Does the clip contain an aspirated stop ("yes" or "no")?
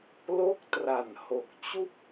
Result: no